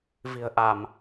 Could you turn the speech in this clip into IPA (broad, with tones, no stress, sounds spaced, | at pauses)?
v i̤˨˩ ə̯ ʔ a˧˩˨ m